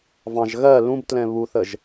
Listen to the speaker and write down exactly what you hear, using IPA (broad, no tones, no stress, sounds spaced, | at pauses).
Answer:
v ɑ̃ ʒ ɣ ɜ l ũ b t l ɛ̃ β u θ ə ʒ